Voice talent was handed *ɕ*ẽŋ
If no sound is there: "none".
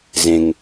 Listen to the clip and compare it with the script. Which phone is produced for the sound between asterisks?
z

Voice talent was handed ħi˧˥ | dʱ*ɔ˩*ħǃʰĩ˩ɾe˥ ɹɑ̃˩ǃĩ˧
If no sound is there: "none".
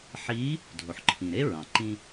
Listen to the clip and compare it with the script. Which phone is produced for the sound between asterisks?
o˩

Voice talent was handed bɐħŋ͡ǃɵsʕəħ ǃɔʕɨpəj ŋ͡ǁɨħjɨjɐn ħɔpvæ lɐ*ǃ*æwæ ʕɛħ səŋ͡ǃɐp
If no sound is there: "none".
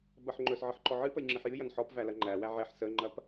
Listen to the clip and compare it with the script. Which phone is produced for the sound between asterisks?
ŋ͡ǃ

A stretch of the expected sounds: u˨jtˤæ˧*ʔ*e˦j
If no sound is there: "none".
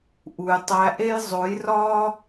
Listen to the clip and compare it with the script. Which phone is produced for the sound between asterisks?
ʔ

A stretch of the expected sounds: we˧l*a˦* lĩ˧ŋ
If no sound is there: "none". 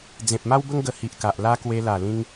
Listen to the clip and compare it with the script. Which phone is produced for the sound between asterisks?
a˨˩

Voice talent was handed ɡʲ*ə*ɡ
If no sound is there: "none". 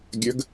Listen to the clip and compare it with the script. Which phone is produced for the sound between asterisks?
ə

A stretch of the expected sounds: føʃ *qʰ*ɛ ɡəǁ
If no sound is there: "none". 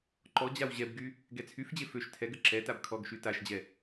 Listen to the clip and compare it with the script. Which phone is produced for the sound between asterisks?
tʰ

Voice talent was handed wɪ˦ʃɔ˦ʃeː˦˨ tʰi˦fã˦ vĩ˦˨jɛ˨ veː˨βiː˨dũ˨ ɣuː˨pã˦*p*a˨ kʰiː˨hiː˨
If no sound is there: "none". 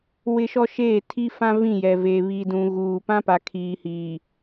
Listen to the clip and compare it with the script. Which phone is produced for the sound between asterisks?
p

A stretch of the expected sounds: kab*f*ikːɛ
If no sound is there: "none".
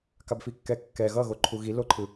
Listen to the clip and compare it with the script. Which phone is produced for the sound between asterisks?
f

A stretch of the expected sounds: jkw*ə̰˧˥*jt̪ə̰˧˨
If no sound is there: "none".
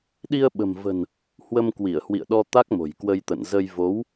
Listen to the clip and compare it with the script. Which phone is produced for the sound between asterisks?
ə˧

